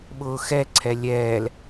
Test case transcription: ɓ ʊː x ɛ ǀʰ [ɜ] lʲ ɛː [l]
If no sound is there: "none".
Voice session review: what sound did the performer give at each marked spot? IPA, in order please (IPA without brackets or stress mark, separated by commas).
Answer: ɛ, l